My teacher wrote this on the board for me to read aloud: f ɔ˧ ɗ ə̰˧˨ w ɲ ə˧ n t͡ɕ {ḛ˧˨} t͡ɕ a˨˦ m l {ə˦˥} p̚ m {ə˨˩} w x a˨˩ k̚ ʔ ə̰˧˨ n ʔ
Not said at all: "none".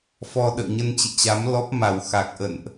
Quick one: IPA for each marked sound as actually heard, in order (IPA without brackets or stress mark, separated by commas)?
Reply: ḛ˧˨, ɔ˦˥, a˨˩